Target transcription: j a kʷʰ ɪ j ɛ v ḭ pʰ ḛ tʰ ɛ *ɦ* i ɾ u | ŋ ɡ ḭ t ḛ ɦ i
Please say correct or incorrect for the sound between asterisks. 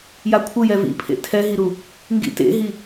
correct